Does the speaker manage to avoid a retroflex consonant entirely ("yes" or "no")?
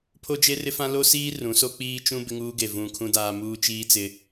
yes